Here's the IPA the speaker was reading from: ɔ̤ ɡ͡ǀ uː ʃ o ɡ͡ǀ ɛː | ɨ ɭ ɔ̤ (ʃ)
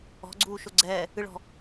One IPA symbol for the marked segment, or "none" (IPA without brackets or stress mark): none